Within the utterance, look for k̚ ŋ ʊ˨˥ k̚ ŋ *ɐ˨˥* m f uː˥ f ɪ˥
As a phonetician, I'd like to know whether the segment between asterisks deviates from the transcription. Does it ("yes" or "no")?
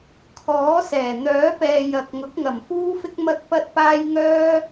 yes